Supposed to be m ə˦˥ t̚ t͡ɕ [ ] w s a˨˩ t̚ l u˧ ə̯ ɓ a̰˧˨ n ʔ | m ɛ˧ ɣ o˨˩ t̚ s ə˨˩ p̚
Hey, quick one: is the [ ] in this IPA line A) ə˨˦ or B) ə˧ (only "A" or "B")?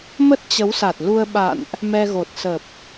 A